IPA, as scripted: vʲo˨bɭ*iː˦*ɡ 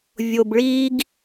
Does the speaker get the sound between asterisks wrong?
no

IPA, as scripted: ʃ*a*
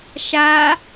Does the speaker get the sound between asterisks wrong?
no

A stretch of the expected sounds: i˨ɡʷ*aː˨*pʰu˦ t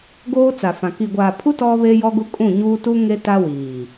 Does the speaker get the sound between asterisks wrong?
no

